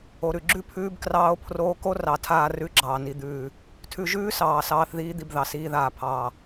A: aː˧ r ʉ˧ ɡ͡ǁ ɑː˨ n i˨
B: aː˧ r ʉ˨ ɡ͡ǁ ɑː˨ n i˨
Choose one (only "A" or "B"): A